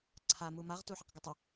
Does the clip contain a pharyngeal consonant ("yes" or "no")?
yes